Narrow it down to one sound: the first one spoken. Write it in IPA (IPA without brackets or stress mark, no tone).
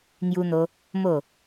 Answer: ŋ